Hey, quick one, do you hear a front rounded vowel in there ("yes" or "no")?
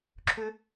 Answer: yes